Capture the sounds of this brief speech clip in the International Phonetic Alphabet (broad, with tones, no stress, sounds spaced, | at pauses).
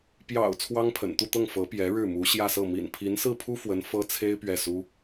p j ɑ̰˨˩ ʊ̯ t͡sʰ w ɑ˥ ŋ pʰ ə̰˨˩ n t̪ u˥˧ t̪ ɤ˥˩ ŋ f ɤ˧˥ p j ɛ˧˥ ɻ ɻ̩˥˩ m u˧˥ ɕ j ä˥˧ s ɤ˥˩ m ḭ˨˩ n pʰ i˧˥ n s ɹ̩˥˩ pʰ u˥ f w ə˧˥ n f ɤ˥ t͡sʰ e˥ ɪ̯ p ɥ ɛ˥˩ s u˥